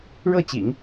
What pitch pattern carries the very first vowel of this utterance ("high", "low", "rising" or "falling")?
falling